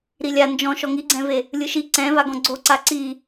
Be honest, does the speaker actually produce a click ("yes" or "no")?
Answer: yes